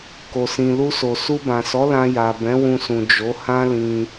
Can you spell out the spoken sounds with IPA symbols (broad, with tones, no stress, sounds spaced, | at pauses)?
k o˨ s ĩ˨ l u˧ s o˨ s u˧ b ã˨ s ɔ˨˦ l ã˧ j a˨ b ɛ̃˨˦ w ũ˧ s ũ˨ d͡ʒ o˨˦ h ã˦ l ĩ˧